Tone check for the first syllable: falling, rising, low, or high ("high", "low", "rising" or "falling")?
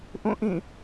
falling